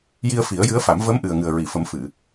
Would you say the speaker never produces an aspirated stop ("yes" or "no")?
yes